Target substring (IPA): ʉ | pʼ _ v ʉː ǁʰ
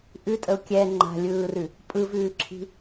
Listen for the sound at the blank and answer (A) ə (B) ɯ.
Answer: B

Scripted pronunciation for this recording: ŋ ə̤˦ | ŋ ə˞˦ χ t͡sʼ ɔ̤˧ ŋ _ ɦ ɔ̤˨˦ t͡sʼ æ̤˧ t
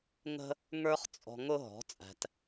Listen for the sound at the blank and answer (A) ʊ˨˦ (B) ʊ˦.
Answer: B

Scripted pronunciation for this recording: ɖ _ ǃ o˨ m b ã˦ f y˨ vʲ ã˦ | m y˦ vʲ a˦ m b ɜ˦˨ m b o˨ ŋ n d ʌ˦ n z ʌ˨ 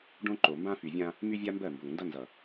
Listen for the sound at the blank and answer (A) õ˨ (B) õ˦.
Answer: B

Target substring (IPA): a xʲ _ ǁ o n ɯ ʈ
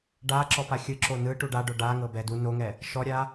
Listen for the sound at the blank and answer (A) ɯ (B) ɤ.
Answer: A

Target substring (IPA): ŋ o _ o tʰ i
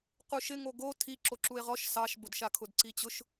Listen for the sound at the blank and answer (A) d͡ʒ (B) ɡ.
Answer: B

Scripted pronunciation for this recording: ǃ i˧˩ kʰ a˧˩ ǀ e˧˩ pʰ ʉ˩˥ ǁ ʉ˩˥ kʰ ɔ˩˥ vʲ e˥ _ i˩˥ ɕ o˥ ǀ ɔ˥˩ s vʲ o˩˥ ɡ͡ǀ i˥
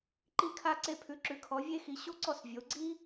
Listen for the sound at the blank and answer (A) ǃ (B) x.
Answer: B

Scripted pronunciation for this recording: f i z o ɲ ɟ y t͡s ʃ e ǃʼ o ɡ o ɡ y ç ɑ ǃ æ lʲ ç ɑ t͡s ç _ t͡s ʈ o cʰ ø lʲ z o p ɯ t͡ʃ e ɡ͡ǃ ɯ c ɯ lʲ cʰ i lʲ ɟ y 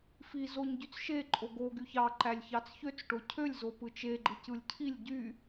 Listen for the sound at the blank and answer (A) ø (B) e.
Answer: A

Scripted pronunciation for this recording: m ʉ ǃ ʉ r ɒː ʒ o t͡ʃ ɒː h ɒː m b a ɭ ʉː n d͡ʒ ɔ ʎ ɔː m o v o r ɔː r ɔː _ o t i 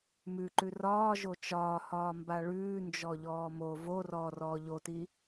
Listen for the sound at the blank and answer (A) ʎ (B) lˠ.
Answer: A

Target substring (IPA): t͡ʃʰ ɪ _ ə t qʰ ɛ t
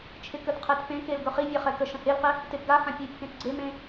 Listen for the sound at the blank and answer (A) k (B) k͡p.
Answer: A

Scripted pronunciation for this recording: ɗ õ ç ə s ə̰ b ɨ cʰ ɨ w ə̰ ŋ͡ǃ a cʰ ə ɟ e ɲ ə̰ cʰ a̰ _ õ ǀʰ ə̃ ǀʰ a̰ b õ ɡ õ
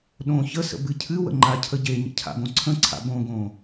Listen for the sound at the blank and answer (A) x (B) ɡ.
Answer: B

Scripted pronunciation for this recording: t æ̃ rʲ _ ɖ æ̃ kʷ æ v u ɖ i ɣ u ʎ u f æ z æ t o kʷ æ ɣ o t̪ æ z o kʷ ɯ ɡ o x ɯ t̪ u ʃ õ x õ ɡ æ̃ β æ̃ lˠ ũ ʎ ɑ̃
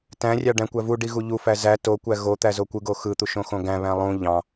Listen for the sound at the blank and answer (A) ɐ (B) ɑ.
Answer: B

